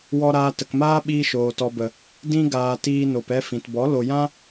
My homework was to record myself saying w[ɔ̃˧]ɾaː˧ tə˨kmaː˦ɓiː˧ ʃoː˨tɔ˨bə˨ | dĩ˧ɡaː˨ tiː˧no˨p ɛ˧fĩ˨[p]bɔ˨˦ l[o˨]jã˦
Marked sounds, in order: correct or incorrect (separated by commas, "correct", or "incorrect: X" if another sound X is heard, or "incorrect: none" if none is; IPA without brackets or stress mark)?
incorrect: ɔ˧, incorrect: t, correct